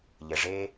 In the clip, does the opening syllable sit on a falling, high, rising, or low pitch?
low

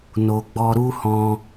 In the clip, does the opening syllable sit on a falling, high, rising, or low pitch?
low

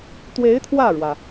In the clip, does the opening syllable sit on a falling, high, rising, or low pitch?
rising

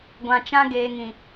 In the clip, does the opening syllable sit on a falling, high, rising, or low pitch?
low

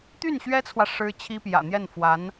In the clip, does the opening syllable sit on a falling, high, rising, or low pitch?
falling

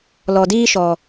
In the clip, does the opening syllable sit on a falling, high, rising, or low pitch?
low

